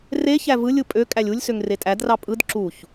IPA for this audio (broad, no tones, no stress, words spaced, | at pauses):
reçæ vɯlʲɯ pʼø kʼælʲulʲsøŋ retʼædrɑ pʼɯd ǁuç